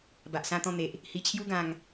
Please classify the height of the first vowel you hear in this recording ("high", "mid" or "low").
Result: low